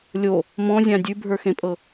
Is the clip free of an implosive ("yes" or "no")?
yes